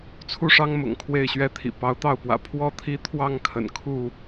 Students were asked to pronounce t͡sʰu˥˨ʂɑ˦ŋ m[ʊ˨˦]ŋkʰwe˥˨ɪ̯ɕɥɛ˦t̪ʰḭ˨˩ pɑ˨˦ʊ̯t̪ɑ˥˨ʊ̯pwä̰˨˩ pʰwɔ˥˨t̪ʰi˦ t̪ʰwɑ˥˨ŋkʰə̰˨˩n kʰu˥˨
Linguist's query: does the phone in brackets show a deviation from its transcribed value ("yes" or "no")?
yes